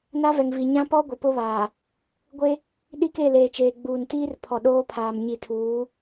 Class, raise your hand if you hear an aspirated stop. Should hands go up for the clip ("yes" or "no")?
yes